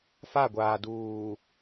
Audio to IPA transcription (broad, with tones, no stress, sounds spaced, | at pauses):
f a˦˨ ɡʷ aː˨ d uː˨